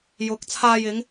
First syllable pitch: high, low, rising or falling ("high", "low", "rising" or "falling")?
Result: rising